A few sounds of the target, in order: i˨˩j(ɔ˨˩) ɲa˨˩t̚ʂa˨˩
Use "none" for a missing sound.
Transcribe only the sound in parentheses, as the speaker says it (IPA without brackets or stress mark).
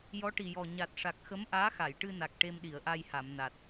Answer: ɔ˨˩